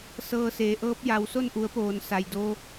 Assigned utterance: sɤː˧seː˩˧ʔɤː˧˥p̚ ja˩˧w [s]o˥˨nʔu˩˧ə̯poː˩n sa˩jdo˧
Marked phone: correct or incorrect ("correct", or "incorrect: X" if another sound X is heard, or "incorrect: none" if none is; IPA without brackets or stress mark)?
correct